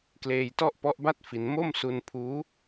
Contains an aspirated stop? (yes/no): yes